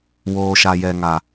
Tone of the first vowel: low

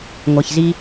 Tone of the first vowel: low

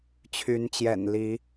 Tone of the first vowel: rising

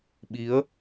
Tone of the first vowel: rising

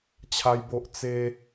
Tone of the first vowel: high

